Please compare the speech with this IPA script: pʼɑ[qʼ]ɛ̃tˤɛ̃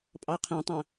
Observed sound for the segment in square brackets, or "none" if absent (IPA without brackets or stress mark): qʰ